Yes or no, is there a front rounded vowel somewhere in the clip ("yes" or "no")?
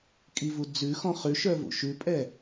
yes